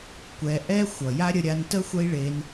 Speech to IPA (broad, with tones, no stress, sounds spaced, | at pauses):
kʷ ɛ˧ ʔ ɛ˦ xʷ ʌ˨ j a˦ ɾʲ ə˧ ɾʲ a˧ n t ə˦ xʷ ə˦ i̯ ɭ e˧ n